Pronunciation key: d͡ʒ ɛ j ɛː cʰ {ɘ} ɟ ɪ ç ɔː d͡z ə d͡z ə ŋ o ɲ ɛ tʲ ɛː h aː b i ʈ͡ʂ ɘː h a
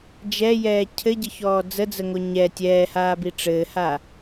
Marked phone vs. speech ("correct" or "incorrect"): correct